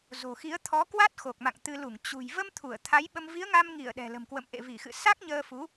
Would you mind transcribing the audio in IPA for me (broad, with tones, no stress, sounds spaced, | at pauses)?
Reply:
z o̤˨˩ x i˨˦ ə̯ t̪ʰ ɔ˨˦ k w a˦˥ t̚ x o˨˩ k̚ m a̰˧˨ ŋ t̪ ɨ˧ l u˧˩ ŋ t͡ɕ ṳ˨˩ j v ə˧ m t̪ʰ u˧˩ ə̯ t̪ʰ a˨˦ j ɓ ə˧ m v i˨˦ ə̯ ŋ a˧ m ŋ i˧˩ ə̯ ɗ ɛ̤˨˩ l ə̤˨˩ m k w ə̰˧˨ m ʔ ḛ˧˨ v i˧˩ x ɨ̰˧˨ s a˦˥ k̚ ɲ əː˧ f u˨˦